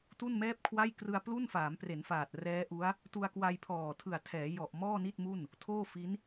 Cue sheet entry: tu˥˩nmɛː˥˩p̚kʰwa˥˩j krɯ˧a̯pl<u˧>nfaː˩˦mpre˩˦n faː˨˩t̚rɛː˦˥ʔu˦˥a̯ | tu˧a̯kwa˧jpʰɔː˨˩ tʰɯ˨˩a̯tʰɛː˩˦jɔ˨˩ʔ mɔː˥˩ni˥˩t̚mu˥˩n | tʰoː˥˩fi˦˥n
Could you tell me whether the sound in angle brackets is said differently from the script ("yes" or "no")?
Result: yes